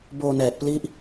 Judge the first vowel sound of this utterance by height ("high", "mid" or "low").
mid